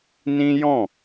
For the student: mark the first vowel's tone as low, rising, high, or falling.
high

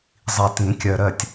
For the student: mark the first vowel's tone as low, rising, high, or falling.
low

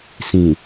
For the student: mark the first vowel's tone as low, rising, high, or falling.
low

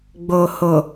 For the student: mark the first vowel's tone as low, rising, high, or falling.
low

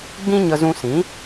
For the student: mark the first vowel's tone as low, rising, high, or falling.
high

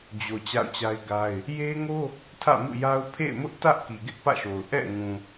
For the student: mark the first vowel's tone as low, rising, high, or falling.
low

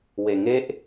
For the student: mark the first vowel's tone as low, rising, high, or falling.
low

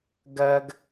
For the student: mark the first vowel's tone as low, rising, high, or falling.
high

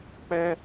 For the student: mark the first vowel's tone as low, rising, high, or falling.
high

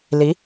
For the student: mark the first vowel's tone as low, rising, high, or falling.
rising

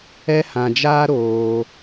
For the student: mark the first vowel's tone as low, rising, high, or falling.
high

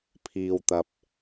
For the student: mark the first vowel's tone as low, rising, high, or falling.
low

